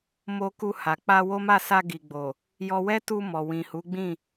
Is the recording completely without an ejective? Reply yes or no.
yes